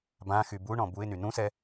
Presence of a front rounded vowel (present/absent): present